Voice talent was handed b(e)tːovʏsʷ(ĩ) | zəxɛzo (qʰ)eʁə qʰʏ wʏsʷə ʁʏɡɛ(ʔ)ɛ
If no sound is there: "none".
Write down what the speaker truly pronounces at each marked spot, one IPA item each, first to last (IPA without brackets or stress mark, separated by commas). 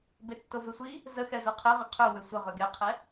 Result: e, i, qʰ, qʰ